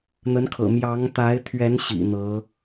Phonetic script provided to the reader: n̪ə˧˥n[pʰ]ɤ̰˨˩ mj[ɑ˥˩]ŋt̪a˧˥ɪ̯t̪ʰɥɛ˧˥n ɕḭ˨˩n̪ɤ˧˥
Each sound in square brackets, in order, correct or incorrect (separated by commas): incorrect, incorrect